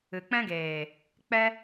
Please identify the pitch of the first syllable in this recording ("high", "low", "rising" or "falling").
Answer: low